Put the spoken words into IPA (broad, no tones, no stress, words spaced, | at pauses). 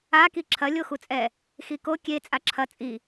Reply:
a kiǁʰɐ lʲoxut͡sʼɛ | xiko kʲe t͡sʼaǁʰɐ t͡sʼi